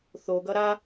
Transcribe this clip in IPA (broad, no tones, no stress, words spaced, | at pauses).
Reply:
θoɡʌ ɾa